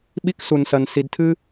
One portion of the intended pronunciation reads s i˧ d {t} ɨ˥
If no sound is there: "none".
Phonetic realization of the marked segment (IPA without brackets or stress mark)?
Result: tʰ